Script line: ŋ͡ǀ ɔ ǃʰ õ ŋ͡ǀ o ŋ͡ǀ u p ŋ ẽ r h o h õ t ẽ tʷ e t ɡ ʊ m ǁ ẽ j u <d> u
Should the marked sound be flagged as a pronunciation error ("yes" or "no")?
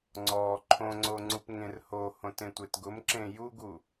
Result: yes